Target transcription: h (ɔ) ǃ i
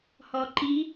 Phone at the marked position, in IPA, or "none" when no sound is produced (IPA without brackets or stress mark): ɔ